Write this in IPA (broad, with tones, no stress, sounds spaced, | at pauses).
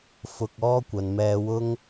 f ʊ˧ k̚ ɔː˥ kʷ ɐ˨ n m ɛː˧ w ʊ˥ ŋ